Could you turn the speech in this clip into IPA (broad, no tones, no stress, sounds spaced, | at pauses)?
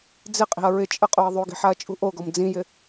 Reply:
d͡z ɪ qʼ i̤ ɐ̯ ɹ ɪ t͡ʃʼ ə qʼ o ɐ̯ ðˤ o ɡ i̤ ħ a ɐ̯ t͡ʃʼ ṳ ʔ o ɡ ɔ m d͡z ĩ j ɪ